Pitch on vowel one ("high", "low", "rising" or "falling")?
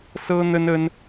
high